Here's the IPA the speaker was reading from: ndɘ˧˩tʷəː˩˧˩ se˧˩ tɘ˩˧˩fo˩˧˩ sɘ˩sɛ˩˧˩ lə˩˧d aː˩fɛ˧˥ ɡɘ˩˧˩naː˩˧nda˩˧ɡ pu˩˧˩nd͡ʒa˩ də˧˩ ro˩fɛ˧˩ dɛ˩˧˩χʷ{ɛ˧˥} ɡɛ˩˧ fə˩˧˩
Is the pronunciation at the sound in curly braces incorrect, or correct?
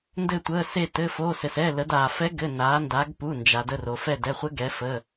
incorrect